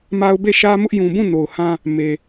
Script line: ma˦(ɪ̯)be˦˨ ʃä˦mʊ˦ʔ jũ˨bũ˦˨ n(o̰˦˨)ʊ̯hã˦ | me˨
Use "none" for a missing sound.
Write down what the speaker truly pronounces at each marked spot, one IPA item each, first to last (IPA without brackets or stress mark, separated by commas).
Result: ʊ̯, o˨